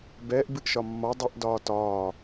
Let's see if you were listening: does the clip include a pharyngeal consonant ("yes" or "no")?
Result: no